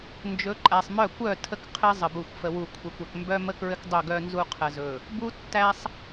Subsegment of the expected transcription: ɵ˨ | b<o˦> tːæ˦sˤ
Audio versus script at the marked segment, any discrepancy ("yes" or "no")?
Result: yes